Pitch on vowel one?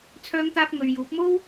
high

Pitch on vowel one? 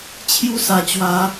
high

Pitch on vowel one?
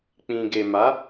low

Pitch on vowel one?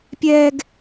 high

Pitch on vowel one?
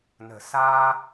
low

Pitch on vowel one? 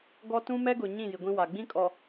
high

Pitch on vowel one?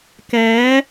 rising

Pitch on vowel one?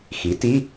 rising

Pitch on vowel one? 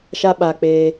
high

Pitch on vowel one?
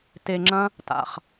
low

